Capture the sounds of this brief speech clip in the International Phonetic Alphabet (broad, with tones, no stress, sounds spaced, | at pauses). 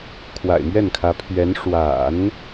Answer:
kʰ w a̰˨˩ ɪ̯ m ɥ ɛ˥˩ n kʰ ä˧˥ pʰ ɥ ɛ˧˥ n ʂ w a̰˨˩˦ n